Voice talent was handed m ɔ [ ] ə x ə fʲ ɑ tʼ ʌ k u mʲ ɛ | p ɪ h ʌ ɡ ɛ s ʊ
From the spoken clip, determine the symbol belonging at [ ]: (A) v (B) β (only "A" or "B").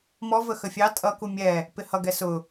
A